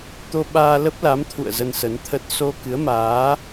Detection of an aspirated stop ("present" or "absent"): present